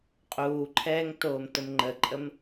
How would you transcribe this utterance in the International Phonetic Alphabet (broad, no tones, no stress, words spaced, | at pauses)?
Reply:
qʼuːǃʰɛːŋ toːmtəmŋ͡ǃəǃʼəm